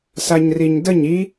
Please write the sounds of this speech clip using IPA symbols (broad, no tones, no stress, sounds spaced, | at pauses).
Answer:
s a ɲ r i ɲ d ə ɲ i